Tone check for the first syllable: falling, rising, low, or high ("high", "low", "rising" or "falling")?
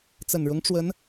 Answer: low